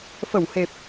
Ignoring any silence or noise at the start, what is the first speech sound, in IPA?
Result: f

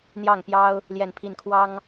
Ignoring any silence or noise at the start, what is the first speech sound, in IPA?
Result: n̪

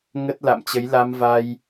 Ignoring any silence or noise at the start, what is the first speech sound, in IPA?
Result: ŋ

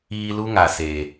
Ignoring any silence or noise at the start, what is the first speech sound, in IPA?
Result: iː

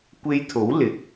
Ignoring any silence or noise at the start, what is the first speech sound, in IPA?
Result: kʷ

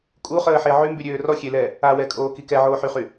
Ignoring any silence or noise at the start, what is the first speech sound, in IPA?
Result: kʼ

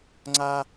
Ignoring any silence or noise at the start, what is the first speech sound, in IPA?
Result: ŋ͡ǀ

